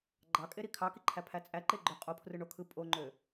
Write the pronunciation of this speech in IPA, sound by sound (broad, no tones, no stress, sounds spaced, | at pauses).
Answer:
ɡ͡ǃ ɑ kʼ e ɾ i kʰ ɑ k i ǃʰ æ pʰ æ t͡sʼ æ ǃ e ɡ͡ǃ ø qʼ o pʰ r ɯ ɳ o kʰ ɯ pʼ o ŋ͡ǃ ø